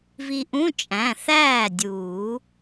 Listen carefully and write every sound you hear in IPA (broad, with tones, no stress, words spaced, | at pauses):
vi˧ʔũ˧˥˧ t͡ʃʼæ̃˩˧˩ θæː˥˩dʲuː˨˩˦